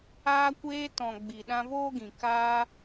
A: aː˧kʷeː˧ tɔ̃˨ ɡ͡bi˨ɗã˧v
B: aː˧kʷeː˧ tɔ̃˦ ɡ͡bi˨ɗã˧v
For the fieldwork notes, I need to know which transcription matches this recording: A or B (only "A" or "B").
A